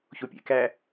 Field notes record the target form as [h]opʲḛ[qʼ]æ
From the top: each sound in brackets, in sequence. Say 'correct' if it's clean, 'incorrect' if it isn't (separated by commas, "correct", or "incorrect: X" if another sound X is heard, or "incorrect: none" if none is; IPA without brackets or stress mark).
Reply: incorrect: ç, incorrect: k